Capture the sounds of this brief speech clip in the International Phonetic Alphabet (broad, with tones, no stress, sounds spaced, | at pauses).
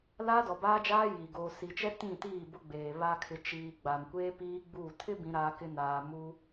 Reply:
l aː˦ d ɔ˨ b aː˦ d͡ʒ aː˦ j i˨ ɡ oː˨ s i˨ t͡ʃ ɛ˦ t ĩ˦˨ t iː˦˨ b ʊ˦ ɡ͡b eː˨ β a˦ kʰ ɪ˨˦ t͡ʃ iː˨ ɡ͡b a˨ m kʷ eː˦ p iː˦ ɡ͡b uː˦˨ tʰ ɪ˦ b ĩ˦ ɾ aː˦ k ɪ˦ n aː˨ m u˦